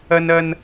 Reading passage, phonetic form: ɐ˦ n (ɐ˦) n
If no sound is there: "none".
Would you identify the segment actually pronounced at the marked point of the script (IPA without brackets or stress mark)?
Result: ɐ˦